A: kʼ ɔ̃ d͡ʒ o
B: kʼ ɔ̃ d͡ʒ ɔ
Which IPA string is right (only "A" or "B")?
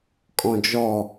B